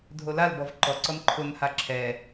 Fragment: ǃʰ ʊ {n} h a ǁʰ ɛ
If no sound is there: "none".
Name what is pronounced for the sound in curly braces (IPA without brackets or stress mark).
n